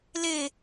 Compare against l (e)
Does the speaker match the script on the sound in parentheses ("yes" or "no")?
yes